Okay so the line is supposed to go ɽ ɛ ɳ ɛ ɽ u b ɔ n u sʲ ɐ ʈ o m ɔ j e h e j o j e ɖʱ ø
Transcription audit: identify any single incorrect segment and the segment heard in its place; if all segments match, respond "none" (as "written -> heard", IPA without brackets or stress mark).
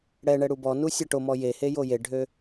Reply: none